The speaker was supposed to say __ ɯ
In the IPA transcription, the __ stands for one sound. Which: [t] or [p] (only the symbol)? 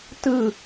t